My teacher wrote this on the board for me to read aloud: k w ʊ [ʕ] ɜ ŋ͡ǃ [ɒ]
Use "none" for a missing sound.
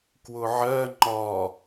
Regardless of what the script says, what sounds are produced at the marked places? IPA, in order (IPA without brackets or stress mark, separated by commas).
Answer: ʕ, ɒ